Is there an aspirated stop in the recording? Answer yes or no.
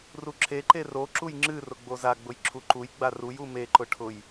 yes